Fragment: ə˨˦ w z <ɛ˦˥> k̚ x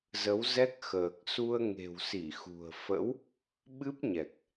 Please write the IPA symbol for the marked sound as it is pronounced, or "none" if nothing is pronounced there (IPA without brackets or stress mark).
ɛ˦˥